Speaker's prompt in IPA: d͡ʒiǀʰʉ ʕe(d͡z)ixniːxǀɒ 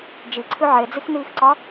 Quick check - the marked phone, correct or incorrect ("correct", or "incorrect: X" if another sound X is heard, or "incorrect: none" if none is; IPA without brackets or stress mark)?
correct